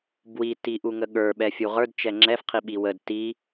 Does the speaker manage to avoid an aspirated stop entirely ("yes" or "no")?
no